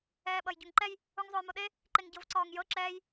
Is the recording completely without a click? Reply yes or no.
no